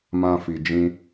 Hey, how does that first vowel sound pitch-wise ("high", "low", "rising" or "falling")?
high